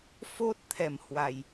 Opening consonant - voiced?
no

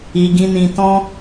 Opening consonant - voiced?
yes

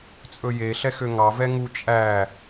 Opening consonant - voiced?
no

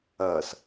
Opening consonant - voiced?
no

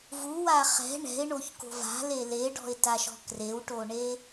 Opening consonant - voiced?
yes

